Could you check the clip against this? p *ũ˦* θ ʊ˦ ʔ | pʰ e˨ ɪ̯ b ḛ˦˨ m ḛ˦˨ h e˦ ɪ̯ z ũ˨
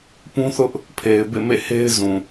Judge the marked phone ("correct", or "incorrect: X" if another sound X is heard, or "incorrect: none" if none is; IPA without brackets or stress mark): correct